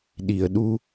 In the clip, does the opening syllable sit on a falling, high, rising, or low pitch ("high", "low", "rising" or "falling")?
low